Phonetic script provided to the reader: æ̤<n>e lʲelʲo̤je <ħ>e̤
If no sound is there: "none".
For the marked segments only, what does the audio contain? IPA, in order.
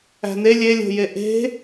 n, ʔ

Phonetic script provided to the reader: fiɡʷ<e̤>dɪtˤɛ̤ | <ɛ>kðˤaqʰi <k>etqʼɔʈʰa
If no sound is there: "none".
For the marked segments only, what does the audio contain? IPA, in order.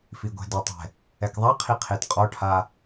ɛ̤, ɛ, qʰ

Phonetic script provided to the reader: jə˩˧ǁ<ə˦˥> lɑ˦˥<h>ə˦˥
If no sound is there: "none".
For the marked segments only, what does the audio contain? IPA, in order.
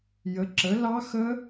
ə˩˧, x

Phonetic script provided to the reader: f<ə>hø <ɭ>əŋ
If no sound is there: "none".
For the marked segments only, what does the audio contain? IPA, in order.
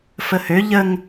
ə, ʎ

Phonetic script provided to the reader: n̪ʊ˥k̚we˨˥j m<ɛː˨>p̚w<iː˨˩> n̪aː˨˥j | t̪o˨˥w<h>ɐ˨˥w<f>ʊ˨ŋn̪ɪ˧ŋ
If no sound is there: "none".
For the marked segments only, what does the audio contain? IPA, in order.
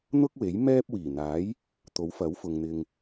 ɛː˥, iː˨˩, f, f

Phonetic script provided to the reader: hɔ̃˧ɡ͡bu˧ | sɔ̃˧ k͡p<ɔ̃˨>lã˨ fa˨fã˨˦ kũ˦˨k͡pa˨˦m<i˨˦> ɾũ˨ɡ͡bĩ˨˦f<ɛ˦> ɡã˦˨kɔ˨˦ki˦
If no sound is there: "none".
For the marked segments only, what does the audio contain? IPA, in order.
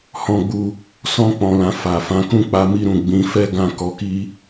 ɔ̃˨, i˧, ɛ˦

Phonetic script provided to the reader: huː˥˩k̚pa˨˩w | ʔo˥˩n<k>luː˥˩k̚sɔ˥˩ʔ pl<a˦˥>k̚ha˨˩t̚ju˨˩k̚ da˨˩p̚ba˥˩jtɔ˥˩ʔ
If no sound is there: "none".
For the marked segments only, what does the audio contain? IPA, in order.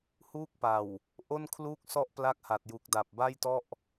kʰ, a˦˥

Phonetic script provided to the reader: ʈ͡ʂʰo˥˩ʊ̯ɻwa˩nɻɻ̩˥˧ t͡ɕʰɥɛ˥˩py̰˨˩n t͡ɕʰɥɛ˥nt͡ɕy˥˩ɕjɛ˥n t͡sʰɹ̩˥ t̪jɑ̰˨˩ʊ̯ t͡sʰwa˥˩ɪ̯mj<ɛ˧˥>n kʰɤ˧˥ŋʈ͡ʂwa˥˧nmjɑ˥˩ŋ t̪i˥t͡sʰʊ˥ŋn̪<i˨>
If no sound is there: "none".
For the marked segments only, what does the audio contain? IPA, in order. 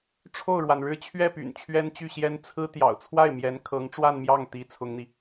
ɛ˧˥, i˨

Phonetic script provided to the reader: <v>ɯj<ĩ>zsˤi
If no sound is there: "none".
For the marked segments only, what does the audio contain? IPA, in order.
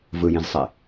v, ĩ

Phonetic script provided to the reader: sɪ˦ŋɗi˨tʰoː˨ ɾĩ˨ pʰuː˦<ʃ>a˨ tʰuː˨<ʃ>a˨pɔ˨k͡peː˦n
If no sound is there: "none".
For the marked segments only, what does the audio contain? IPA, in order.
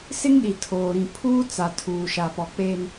t͡s, ʃ

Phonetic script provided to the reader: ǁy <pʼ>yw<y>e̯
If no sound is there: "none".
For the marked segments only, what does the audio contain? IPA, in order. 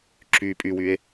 pʼ, y

